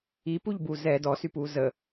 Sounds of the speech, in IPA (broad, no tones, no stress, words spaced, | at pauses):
ipuʎbu zɛ dɔsypuː zə